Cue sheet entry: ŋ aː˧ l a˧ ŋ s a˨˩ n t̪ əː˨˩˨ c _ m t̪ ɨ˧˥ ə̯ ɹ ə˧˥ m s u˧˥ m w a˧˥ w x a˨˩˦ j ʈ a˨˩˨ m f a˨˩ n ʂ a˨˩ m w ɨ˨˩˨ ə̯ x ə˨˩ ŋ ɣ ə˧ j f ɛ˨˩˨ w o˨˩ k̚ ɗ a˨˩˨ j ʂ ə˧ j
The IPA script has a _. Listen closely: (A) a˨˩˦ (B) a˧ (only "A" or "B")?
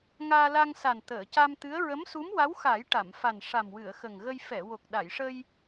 B